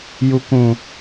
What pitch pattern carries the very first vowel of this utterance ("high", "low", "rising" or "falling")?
low